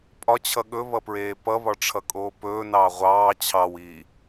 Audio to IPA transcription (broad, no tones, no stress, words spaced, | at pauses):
pʼɒt͡ɕʰʌ ɠɵβʌpɹeː pʌβɒʈ͡ʂʰʌkʼoː pɵːnɑː ʁʷɑː t͡ɕʰɑwiː